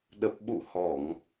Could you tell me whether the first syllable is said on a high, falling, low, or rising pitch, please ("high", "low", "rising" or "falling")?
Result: low